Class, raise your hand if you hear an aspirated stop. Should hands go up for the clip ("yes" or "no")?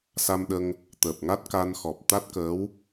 no